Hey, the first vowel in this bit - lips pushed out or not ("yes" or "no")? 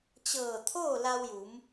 no